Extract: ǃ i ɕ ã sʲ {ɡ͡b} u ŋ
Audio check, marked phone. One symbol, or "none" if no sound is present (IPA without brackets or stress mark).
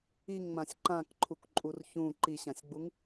ɡ͡b